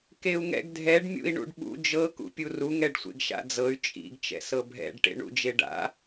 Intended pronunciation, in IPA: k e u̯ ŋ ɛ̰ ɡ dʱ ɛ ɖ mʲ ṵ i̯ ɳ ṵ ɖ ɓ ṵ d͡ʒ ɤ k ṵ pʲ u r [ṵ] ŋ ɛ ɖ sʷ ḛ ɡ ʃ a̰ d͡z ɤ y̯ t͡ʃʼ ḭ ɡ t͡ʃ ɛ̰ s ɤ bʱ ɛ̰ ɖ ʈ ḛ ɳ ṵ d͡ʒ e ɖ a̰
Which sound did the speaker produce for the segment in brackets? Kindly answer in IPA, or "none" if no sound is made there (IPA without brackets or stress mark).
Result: u